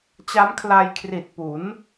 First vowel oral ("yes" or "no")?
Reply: yes